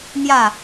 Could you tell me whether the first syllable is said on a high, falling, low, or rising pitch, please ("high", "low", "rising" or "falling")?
falling